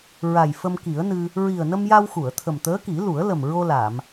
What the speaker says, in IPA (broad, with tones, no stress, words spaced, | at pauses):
ɹa˨˩jfə˧mki˨˩˦ə̯nɨ˧ | ɹi˨˩ə̯nə˧mja˧w xu˨˩˨ə̯ t̪ʰə˨˩m t̪əː˧˥ki˨˩˦lu˨˩˦ə̯lə˨˩m ɹo˧la˨˩˨m